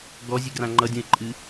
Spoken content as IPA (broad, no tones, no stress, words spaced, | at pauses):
ɡɔzʲɨɡrã ŋ͡ǃʌdʲũɪ̯ǃʼɨ